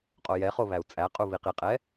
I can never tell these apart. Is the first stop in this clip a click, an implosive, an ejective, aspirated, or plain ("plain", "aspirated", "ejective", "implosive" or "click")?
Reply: ejective